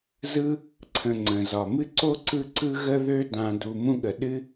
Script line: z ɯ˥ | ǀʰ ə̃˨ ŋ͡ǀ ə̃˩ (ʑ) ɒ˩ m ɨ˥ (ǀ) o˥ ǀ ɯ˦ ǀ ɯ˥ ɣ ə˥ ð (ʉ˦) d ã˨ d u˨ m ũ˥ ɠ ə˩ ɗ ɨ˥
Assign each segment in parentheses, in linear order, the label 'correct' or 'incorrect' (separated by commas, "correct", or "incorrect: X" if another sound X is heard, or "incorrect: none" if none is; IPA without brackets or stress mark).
incorrect: z, correct, incorrect: ø˦